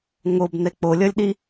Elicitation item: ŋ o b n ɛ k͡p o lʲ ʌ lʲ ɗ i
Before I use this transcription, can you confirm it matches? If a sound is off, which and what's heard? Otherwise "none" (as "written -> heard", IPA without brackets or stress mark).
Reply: none